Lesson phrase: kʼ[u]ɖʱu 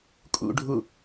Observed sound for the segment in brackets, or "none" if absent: ṵ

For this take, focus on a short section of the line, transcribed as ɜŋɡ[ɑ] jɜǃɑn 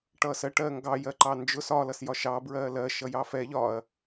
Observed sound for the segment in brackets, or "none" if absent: ɑ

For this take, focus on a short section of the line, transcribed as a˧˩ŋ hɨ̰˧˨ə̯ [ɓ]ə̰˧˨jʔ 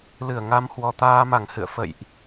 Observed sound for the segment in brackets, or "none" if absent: f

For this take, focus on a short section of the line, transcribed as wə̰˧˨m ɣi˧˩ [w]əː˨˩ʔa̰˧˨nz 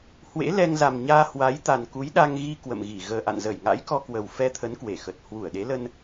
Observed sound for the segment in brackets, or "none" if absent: ɣ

